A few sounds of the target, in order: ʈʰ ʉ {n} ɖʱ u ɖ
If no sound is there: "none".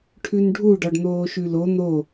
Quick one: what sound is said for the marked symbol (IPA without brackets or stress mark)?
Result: n